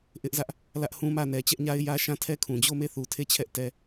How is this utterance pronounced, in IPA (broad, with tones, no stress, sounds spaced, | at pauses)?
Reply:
ʔ ɪ˦ ʔ z ä˦ ʔ | l ä˦ ʔ h ũ˦ m ä˦˨ n ɛ˨ t͡ɕ ɛ˦ ʔ ɲ a˦ ɪ̯ j ä˦ ʃ ã˦˨ tʰ ɛ˦ kʰ ũ˨ d͡ʑ o˦˨ m e˦˨ θ u˨ tʰ e˦˨ t͡ɕʰ ɛ˦ ʔ t ɛ˦